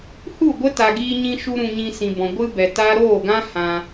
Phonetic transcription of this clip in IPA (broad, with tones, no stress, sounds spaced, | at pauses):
h u˦˨ ɡʷ ə˦ t a˨ ɡ iː˧ ɲ ĩ˧ ʃ u˦ ɾ ũ˧ ɲ ĩ˧ s ĩ˨ b ɔ̃˨ ɡʷ ɨ˦ b ɛ˨ t a˦ ɾ oː˦˨ ɡ ã˦ h ã˧